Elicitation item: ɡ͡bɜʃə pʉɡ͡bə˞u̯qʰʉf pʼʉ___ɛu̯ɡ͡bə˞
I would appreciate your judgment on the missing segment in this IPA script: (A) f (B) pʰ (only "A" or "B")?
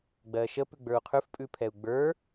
B